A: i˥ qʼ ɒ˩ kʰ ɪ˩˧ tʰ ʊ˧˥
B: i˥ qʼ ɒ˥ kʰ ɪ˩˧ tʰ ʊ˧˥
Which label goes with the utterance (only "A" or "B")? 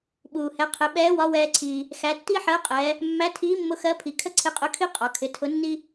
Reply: A